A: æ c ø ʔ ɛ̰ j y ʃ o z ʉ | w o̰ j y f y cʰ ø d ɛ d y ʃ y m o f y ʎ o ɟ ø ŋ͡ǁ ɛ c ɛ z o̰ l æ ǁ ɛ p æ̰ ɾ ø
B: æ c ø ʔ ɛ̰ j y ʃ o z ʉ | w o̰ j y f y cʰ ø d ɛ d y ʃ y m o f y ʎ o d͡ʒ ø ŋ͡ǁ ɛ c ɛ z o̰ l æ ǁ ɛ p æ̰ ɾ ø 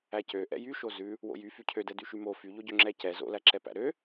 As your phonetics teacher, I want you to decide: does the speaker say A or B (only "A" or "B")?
A